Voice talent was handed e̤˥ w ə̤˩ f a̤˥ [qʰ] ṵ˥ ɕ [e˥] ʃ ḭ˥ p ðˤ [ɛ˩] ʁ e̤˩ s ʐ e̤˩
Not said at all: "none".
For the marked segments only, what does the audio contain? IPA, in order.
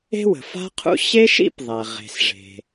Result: qʰ, e˥, ɛ˩

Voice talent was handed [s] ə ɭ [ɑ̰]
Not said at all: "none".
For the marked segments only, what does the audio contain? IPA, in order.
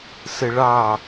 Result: s, ɑ

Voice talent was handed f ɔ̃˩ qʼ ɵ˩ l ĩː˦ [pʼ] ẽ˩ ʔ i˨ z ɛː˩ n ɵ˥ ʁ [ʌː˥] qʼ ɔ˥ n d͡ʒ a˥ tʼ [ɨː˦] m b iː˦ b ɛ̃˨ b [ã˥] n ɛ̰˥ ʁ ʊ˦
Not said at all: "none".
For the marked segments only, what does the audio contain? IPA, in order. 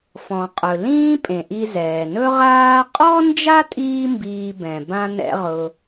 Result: pʼ, aː˥, iː˦, ã˥

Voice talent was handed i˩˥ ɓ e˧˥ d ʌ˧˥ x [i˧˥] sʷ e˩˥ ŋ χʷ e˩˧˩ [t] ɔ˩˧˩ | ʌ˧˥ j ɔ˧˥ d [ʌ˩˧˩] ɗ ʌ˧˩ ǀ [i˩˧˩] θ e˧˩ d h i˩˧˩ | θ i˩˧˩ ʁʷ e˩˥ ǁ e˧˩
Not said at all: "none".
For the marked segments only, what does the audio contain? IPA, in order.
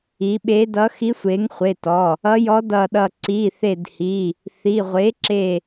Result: i˧˥, t, ʌ˧˩, i˩˧˩

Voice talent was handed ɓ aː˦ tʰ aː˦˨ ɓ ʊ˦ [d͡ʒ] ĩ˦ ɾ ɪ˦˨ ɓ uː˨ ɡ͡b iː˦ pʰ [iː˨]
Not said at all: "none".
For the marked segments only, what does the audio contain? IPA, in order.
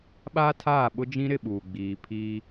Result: d͡ʒ, iː˦

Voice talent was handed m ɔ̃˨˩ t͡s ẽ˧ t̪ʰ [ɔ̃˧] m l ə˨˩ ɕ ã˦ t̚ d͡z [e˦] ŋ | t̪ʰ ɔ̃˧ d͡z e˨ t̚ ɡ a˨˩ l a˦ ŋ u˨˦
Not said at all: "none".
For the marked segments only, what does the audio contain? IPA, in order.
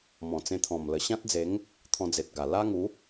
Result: ɔ̃˨˩, e˨˦

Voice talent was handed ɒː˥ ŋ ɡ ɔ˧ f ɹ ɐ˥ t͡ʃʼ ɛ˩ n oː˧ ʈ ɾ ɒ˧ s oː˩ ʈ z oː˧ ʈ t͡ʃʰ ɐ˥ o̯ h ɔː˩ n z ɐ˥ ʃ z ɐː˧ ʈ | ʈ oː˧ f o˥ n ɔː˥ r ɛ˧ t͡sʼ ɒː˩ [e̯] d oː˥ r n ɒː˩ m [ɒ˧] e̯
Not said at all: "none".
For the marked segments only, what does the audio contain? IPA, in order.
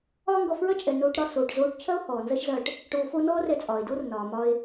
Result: e̯, ɒ˧

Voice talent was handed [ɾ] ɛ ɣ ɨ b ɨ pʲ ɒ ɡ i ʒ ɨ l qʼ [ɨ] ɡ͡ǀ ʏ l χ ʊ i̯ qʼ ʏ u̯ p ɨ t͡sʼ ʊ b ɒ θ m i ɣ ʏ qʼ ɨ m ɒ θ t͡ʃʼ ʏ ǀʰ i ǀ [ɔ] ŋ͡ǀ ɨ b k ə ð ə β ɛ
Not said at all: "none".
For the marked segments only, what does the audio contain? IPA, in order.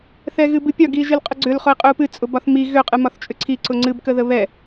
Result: θ, ʏ, ʊ

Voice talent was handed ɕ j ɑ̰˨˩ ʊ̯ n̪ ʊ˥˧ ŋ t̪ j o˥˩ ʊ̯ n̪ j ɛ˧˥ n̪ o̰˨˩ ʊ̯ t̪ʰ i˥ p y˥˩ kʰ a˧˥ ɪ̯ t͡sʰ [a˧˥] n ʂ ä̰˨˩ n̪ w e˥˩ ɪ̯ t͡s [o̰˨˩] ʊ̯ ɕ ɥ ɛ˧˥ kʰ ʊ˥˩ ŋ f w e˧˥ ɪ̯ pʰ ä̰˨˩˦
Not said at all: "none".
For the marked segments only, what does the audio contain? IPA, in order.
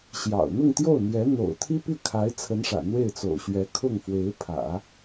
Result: ə˧˥, o̰˨˩

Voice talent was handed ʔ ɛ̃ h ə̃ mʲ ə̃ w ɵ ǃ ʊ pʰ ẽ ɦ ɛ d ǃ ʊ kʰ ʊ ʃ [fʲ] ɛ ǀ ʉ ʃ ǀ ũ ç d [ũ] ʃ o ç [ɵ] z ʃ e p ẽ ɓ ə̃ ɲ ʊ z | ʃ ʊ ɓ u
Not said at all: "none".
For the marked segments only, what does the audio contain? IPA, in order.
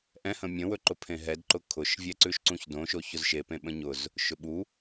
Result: vʲ, õ, ʊ

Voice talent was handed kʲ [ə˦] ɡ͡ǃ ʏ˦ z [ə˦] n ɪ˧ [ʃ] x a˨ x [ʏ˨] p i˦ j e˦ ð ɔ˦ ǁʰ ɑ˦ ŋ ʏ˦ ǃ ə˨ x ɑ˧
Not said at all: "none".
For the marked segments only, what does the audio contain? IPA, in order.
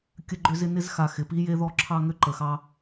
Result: ə˦, ɪ˦, z, ɪ˨

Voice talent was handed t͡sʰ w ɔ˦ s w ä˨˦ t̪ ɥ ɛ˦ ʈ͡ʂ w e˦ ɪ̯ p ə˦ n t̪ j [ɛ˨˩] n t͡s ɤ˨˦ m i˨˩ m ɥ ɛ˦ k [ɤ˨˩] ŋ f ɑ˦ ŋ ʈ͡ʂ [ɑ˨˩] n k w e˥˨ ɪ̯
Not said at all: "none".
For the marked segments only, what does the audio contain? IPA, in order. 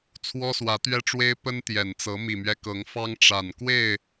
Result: ɛ˨˩, ɤ˨˦, a˨˩

